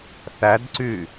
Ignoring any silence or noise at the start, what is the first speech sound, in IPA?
θ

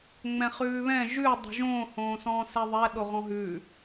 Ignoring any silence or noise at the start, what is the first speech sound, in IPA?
ŋ͡m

